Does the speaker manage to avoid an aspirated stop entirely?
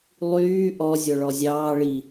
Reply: yes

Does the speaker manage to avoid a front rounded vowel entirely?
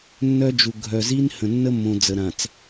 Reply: no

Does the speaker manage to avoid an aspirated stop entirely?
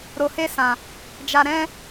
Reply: yes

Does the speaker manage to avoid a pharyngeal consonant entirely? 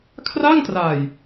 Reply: yes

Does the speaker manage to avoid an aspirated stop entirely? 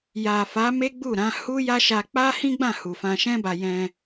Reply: yes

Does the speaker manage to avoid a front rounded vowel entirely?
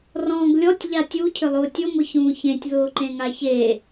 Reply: no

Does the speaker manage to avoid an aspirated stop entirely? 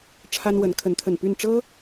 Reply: no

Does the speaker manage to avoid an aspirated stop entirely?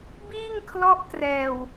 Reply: no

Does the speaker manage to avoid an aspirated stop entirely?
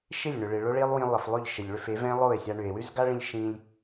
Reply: yes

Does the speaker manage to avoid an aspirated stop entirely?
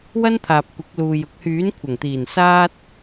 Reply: no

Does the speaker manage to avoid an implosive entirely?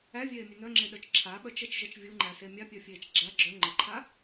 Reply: no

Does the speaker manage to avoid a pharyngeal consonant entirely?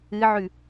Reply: no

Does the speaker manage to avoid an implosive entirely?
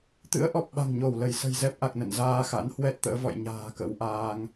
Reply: no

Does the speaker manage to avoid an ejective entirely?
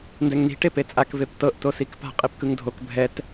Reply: no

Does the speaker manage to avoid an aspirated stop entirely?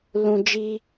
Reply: yes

